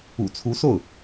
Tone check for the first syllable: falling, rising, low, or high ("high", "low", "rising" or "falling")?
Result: low